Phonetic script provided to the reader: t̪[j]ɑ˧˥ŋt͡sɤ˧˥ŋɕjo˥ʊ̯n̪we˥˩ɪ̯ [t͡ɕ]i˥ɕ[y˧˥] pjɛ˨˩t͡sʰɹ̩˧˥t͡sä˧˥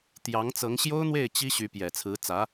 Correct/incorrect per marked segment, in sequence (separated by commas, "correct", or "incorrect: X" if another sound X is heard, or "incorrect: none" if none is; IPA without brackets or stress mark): correct, correct, correct